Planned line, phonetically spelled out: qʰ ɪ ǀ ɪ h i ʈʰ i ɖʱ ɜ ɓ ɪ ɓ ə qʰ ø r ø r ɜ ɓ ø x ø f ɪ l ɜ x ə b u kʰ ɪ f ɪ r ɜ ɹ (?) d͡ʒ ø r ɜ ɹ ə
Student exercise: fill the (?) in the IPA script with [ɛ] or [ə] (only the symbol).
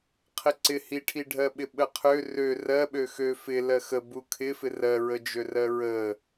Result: ə